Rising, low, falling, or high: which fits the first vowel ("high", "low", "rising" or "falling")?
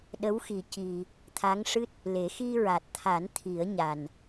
rising